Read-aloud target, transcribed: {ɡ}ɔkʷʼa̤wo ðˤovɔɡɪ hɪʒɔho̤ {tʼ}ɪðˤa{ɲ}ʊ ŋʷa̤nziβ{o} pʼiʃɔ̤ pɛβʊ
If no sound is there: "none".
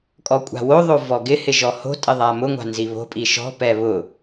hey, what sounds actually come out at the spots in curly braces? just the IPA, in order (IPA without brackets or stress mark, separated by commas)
kʼ, tʼ, m, o̤